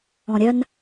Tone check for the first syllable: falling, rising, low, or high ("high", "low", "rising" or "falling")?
low